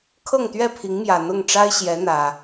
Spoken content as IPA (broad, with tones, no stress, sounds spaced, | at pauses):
kʰ ɤ˥˨ ŋ t̪ ɥ ɛ˥˨ pʰ i˨˦ ŋ m j ä˨˩ n̪ ʊ˥˨ ŋ ʈ͡ʂ a˦ ɪ̯ ɕ j ɛ˨˦ n̪ ä˨˩